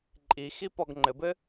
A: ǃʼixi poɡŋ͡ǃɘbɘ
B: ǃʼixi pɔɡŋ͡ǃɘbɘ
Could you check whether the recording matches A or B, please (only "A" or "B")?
B